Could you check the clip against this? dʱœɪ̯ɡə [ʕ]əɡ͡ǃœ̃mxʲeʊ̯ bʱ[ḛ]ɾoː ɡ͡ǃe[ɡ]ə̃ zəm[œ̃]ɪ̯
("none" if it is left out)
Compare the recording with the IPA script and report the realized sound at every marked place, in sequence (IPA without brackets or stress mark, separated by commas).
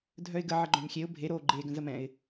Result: ʕ, e, ɡ, ɛ̃